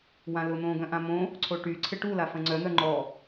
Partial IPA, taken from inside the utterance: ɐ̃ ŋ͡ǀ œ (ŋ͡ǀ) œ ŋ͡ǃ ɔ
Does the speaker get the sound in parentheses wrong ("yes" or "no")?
yes